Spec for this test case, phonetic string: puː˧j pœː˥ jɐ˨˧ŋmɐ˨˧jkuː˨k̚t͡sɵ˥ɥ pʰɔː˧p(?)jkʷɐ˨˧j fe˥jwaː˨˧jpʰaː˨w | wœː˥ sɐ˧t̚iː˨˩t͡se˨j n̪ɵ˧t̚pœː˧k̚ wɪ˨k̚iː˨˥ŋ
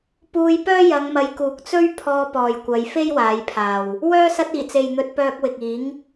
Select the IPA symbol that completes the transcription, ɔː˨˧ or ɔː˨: ɔː˨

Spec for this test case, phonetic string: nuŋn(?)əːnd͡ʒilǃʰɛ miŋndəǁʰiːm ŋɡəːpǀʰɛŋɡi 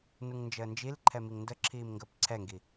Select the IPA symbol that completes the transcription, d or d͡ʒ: d͡ʒ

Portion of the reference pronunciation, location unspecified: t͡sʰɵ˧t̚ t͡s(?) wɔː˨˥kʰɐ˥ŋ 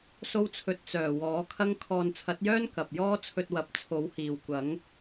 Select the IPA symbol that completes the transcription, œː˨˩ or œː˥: œː˨˩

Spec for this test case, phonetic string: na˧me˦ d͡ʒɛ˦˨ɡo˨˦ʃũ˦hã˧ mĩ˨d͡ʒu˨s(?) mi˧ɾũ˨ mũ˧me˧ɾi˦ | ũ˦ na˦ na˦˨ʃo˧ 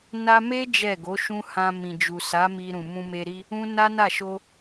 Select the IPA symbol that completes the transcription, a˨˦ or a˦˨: a˨˦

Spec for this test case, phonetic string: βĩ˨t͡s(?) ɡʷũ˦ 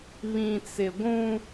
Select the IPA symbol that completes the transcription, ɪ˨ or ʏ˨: ɪ˨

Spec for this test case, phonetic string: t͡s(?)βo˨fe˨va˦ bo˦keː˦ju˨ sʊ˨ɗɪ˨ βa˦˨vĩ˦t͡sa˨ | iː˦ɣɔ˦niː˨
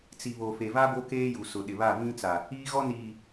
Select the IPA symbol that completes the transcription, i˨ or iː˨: i˨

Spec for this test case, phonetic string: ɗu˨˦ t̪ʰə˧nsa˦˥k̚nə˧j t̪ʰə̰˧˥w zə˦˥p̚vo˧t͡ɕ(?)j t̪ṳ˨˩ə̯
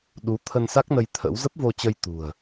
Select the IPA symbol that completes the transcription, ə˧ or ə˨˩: ə˧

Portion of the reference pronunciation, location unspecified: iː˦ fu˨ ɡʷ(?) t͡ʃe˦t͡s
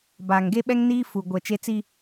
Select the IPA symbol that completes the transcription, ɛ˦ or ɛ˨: ɛ˨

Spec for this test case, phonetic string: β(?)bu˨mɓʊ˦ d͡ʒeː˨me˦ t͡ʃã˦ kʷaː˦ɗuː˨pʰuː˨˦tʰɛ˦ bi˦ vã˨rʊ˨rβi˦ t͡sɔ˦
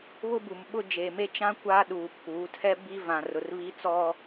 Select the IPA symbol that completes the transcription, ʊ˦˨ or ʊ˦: ʊ˦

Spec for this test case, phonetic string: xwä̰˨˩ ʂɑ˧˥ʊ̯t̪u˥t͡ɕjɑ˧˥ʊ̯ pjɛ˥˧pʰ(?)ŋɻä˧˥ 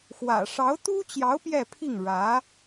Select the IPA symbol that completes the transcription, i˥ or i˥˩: i˥˩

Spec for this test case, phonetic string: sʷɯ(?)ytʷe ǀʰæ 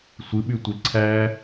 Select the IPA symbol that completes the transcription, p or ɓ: ɓ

